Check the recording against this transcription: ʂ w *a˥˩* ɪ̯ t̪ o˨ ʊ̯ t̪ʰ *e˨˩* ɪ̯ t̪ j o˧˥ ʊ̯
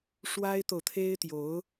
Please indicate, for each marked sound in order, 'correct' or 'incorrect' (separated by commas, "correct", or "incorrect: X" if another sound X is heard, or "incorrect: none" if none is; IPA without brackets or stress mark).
incorrect: a˥, incorrect: e˥